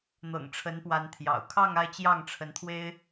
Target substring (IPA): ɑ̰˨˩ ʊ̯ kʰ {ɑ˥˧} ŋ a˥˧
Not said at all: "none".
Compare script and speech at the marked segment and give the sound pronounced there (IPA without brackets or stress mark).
ɑ˥˧